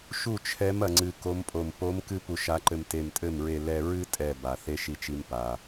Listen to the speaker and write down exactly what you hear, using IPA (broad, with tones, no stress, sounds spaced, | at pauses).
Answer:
ʃ u˥˩ t͡ʃʰ ɛ˧˥ m ɐ˧ ŋ͡ǀ ɨ˧ k o˧˥ m pʼ o˧˩ m p o˧˥ m k ɨ˥ p u˧ ʃ a˧˥ ǃ ɘ˧ m t e˧˩ m tʼ ɘ˥˩ m ɹ e˧ l ɛ˧ ɹ ɨ˥ tʼ ɛ˧˩ b a˩ θ e˧˥ ʃ i˧ t͡ʃ i˧ m p a˩